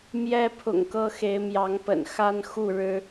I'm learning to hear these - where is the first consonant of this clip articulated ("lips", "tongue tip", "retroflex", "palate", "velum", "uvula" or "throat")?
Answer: lips